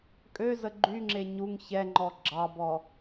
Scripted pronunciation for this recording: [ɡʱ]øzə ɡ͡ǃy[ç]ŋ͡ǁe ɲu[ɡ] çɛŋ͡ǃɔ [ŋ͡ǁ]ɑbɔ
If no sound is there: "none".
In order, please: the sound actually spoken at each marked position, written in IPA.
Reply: kʼ, none, ŋ, ɡ͡ǁ

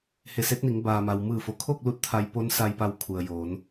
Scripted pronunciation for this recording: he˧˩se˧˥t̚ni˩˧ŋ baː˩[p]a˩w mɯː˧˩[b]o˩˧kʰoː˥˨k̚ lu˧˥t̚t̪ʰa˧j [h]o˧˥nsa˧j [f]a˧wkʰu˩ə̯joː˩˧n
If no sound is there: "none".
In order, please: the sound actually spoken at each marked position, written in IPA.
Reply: m, f, p, p

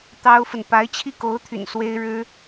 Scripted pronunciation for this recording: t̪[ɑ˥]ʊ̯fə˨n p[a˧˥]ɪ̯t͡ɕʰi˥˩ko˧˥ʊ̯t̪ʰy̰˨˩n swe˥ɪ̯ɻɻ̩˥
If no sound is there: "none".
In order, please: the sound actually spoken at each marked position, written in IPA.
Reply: ɑ˥, a˧˥

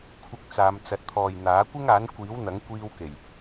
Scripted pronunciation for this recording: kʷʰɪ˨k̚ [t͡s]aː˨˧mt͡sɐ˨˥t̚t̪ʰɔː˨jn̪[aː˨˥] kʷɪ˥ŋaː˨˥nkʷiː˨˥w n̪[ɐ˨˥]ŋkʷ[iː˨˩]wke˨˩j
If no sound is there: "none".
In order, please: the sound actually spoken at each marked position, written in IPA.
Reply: t͡s, aː˨˥, ɐ˨˥, iː˧

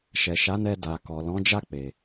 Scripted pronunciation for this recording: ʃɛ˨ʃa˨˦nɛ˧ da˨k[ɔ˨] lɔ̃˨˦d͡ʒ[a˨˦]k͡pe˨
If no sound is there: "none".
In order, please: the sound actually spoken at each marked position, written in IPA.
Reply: ɔ˨, a˦˨

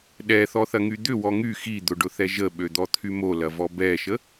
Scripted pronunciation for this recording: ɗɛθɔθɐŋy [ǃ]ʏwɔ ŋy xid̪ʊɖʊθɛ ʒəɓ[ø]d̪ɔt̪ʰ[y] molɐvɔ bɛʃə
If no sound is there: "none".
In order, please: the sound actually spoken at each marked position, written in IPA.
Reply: d̪, ø, y

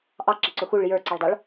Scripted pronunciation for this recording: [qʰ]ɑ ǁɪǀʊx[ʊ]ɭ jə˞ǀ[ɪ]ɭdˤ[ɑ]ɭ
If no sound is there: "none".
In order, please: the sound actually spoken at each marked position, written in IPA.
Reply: ʔ, u, ɪ, ɑ

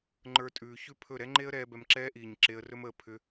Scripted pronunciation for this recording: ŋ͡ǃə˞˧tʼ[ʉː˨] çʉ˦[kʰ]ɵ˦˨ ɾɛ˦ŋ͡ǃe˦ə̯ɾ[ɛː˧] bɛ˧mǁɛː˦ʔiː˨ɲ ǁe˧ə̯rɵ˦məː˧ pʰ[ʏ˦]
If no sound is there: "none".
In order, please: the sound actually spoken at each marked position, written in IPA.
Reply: ʉː˨, pʰ, ɛː˧, ʏ˦

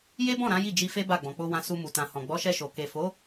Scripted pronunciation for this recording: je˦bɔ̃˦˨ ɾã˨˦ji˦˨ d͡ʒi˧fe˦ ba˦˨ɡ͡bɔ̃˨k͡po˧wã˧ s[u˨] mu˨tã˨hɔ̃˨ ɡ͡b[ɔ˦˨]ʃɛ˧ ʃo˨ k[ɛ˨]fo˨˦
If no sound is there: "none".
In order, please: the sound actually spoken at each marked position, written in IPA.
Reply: u˧, ɔ˨˦, e˨

